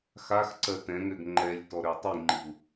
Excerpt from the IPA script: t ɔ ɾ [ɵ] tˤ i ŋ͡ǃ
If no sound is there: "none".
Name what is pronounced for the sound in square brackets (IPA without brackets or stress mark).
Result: ø